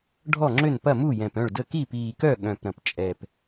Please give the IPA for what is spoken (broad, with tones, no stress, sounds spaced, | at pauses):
ɖʱ ɔ˥˩ ŋ͡ǁ ø˥˩ n p ɐ˥˩ m u˥˩ j ɛ̃˨˩ p œ̃˥˩ ɭ d ə˥˩ k i˥˩ p iː˨˩ k œ˥˩ ɠ œ̃˨˩ p ɾ ɐ̃˨˩ p t͡ʃʼ ɛ˨˩ p